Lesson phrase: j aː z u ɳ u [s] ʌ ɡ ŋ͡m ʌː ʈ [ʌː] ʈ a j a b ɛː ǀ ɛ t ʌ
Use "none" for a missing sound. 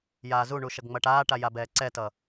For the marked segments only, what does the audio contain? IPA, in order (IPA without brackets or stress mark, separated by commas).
ʃ, aː